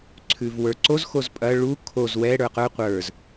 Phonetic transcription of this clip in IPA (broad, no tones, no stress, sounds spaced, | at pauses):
ǀʰ ʉ v w ə˞ ǀ o z x o z pʼ ɐ ɭ u kʰ o z w ɛ ɽ ə˞ q ə˞ qʷ ə˞ z